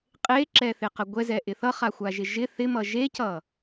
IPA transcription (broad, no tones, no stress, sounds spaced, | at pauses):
qʼ e ǁ ɛ θ ɪ q ə ɡʷ ɛ z ɛ ʔ ɪ θ ʌ χ a xʷ a ʒ ɪ ʒ ɪ θ ɪ m ʌ ʒ e c ʌ